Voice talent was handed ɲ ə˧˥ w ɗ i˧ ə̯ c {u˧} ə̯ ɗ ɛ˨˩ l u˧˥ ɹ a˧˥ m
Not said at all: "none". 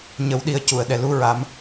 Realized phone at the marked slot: u˨˩˨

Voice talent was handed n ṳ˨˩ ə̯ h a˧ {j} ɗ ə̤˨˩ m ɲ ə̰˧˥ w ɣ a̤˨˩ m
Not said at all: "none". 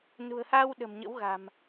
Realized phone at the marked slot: w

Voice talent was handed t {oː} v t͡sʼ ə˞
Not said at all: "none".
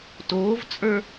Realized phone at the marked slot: oː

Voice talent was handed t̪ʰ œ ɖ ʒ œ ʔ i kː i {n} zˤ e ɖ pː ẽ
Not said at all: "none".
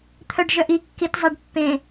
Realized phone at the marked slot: t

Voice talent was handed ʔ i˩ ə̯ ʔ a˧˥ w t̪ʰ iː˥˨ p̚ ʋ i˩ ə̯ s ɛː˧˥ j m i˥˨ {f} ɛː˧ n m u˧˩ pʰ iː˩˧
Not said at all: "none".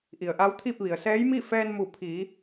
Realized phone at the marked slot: f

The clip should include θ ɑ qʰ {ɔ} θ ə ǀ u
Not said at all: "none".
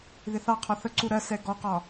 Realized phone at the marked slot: ɔ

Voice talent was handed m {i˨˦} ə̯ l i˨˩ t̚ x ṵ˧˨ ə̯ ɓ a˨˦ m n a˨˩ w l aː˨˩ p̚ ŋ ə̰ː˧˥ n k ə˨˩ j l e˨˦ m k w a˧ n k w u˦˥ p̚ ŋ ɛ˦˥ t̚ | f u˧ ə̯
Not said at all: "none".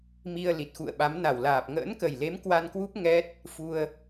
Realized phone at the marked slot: i˧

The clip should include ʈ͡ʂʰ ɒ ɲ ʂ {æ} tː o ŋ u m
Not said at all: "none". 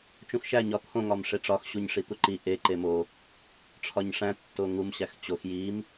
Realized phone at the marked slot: æ̃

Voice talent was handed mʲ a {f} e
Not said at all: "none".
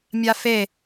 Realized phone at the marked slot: f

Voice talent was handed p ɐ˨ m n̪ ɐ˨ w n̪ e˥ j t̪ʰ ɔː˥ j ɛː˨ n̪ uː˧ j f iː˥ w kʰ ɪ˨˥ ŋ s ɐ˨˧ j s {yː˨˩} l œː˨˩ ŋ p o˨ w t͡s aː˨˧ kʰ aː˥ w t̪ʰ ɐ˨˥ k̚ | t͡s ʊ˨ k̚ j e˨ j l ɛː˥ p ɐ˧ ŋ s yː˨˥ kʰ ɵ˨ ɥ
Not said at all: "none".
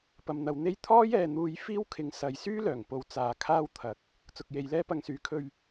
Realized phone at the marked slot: yː˥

